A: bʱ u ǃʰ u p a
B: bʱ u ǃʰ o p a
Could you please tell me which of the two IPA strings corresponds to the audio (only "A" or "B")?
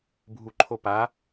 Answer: B